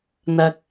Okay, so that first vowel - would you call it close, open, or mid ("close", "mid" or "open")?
open